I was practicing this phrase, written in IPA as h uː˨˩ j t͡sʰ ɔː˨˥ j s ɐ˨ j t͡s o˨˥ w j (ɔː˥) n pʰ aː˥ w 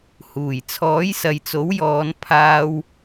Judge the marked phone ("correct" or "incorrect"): incorrect